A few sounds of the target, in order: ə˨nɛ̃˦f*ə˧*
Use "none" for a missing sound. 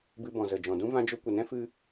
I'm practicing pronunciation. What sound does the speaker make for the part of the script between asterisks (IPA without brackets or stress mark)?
ɨ˧